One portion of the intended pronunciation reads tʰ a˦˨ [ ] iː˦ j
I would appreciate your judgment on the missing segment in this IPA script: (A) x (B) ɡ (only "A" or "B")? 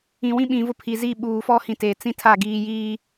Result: B